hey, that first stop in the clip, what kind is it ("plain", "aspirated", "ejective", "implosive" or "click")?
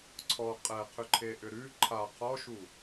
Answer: click